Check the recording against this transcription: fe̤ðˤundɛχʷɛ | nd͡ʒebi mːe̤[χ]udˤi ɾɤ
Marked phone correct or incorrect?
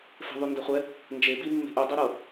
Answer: incorrect